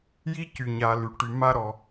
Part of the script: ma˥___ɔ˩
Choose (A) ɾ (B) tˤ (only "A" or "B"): A